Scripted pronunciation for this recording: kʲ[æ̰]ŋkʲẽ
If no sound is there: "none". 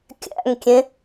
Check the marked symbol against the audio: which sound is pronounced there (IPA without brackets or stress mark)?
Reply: æ̰